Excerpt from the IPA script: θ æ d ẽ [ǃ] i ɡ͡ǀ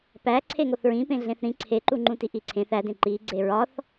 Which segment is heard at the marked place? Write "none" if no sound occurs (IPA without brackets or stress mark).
ǃ